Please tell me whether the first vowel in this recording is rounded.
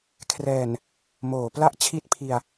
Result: no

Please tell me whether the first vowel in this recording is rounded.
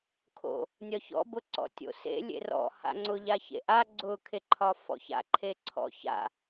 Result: yes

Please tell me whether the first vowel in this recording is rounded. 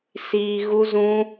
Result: no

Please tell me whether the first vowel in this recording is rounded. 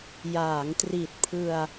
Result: no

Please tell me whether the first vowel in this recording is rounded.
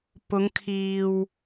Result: yes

